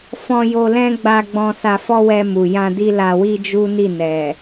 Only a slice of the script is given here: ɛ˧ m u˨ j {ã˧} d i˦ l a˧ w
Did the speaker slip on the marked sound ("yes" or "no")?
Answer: no